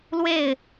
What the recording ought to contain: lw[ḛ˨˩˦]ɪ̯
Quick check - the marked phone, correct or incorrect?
incorrect